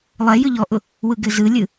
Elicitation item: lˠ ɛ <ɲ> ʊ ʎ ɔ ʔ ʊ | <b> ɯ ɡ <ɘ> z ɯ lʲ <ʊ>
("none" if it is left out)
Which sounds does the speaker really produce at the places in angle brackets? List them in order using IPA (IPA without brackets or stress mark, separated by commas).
j, w, ɘ, ɯ